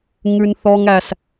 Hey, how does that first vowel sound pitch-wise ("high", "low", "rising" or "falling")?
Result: high